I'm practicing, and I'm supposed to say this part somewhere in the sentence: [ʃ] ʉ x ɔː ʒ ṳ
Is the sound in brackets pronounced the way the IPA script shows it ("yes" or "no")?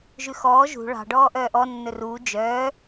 no